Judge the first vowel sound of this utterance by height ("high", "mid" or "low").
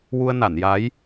high